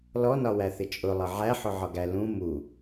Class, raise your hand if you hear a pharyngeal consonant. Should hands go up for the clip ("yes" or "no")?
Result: yes